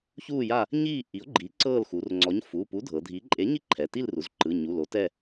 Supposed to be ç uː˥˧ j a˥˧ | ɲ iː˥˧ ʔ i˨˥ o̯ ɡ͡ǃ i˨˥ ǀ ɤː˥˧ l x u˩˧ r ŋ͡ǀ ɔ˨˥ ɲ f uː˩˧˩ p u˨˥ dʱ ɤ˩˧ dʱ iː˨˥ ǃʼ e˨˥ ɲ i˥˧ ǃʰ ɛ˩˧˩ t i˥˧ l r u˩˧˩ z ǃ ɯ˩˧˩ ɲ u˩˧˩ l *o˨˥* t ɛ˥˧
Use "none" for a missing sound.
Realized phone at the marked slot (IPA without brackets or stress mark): o˨˥